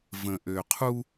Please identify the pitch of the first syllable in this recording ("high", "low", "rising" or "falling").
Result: low